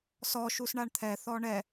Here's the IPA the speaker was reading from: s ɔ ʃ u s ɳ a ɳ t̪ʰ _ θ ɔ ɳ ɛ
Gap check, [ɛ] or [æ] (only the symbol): ɛ